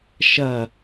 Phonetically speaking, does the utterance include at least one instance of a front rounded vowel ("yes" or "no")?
no